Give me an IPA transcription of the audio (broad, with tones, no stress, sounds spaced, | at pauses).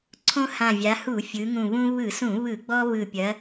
ǀʰ õ˦ h ã˨˩ vʲ a˩˧ h u˧˩˧ fʲ ɯ˩˧ ŋ ũ˨˩ β ũ˦ β ɯ˧˩˧ s ũ˧˩˧ β ɯ˧˩˧ ɡ͡b ɔ˦ β ɯ˨˩ pʲ ɐ˩˧